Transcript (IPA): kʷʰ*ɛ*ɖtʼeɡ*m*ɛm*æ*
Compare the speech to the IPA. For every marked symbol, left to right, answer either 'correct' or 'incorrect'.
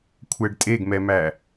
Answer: correct, correct, correct

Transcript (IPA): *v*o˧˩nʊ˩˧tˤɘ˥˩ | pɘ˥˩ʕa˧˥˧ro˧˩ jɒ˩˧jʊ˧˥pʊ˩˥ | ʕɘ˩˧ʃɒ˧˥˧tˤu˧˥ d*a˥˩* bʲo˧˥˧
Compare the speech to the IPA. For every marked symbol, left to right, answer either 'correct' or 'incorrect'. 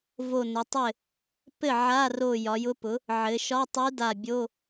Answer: correct, incorrect

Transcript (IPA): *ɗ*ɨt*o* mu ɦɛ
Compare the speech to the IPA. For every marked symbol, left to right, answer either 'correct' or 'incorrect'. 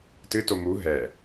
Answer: incorrect, correct

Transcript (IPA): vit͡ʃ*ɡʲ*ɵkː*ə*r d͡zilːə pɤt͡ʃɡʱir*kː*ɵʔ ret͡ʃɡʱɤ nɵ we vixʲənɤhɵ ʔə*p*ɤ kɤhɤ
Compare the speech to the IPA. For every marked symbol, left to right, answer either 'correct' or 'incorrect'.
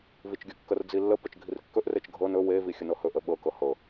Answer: correct, correct, correct, incorrect

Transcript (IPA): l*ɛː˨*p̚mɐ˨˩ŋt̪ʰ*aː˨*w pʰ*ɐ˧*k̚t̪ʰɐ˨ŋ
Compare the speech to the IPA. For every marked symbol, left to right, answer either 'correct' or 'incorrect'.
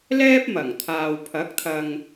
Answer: incorrect, correct, incorrect

